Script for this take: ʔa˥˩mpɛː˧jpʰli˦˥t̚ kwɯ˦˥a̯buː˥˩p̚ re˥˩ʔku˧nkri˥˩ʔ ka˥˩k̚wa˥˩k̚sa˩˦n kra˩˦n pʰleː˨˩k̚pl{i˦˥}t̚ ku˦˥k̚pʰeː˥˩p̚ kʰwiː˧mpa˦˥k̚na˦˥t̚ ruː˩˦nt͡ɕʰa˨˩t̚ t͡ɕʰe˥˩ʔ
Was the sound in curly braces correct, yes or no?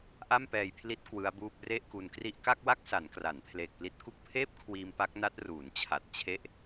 yes